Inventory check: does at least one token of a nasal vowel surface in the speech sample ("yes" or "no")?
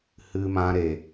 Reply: yes